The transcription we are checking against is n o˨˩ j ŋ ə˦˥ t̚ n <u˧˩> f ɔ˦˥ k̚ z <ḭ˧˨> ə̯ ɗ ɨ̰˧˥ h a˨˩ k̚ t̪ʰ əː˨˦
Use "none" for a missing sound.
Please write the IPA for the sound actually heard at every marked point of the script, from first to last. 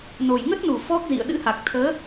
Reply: u˧˩, ḭ˧˨

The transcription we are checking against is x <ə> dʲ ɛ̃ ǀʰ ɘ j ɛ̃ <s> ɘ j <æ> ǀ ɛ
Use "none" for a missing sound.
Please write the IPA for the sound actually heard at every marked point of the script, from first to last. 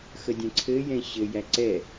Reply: ə, ɕ, æ

